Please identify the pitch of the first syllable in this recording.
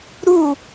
falling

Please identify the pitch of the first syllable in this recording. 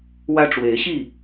high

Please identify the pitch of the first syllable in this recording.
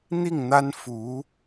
falling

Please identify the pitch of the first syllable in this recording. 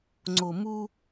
low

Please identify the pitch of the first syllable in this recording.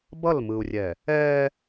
falling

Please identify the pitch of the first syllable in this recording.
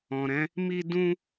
low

